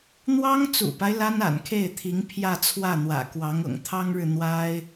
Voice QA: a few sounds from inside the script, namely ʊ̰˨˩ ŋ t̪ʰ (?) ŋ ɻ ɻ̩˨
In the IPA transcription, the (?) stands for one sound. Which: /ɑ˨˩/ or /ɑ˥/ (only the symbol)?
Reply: ɑ˥